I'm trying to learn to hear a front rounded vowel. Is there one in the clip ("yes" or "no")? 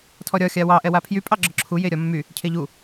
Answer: yes